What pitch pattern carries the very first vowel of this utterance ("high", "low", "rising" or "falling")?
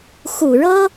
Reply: low